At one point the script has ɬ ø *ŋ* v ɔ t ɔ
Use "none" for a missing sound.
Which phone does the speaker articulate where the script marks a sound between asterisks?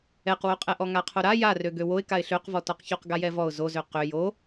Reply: q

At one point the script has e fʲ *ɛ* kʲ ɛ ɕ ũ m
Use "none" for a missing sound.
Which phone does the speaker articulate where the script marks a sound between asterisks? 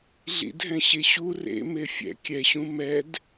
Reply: ɛ̰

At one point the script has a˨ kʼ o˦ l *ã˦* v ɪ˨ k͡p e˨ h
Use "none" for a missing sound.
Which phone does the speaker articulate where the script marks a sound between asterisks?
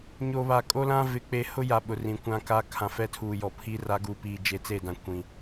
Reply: ã˦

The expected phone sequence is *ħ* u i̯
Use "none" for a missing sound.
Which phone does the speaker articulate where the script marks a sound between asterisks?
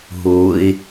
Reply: ɦ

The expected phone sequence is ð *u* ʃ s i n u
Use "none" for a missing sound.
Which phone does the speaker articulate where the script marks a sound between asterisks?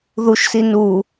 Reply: u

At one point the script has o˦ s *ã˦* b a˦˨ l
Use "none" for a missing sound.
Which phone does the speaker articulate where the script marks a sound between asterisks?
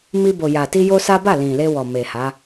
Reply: a˦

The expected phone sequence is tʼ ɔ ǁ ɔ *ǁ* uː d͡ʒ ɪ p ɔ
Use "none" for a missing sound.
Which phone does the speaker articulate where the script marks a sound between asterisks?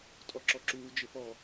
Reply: ǁ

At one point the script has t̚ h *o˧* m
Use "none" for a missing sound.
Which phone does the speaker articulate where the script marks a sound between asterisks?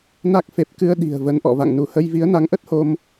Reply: o˧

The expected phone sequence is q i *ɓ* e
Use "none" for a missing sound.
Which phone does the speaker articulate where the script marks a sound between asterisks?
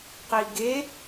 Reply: ɡ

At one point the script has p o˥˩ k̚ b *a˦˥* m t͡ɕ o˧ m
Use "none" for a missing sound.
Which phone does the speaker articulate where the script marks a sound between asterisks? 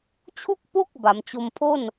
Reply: a˩˦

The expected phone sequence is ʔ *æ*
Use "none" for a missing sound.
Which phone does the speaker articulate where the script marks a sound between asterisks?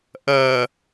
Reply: ɜ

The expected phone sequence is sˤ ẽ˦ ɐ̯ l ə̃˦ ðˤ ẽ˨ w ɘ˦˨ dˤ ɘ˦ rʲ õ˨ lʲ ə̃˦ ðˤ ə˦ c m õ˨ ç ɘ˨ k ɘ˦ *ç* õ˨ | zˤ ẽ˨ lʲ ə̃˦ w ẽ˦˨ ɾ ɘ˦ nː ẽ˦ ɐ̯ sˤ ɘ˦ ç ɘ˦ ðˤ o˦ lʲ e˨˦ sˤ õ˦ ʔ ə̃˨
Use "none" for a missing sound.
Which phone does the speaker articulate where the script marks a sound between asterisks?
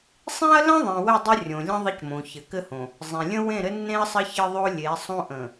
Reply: h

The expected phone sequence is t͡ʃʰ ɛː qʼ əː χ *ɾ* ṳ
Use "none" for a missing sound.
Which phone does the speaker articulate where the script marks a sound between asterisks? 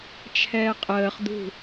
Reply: d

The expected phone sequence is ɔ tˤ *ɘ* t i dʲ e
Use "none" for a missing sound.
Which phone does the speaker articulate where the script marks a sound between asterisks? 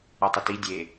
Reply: ɘ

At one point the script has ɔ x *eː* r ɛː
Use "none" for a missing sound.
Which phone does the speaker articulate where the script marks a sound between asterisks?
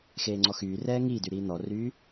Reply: yː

